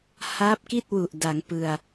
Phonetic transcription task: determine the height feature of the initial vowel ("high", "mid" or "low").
low